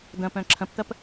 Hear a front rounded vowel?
yes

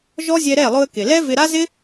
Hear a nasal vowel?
no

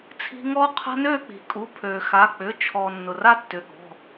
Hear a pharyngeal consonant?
no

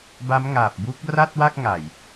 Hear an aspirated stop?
no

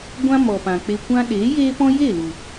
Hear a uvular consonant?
no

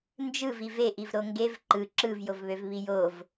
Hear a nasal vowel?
no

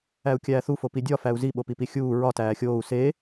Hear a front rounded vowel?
no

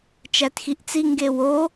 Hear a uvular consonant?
no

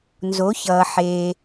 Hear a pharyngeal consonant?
yes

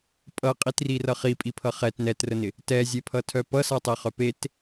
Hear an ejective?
yes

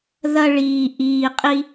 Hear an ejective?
yes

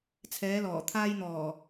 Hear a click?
no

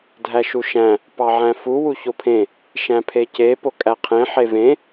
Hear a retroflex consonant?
no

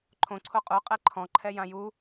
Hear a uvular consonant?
yes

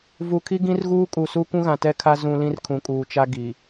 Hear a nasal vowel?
yes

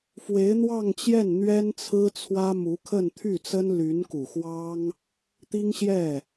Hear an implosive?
no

